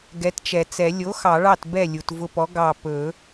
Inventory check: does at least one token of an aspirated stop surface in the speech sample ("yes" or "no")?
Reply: no